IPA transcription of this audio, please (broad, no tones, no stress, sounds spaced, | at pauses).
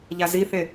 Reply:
ʎ a z i θ e